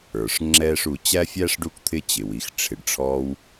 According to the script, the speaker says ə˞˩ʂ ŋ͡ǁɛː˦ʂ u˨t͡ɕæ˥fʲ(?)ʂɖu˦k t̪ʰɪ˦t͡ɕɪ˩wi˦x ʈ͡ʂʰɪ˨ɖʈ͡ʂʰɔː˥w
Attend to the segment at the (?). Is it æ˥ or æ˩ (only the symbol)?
æ˥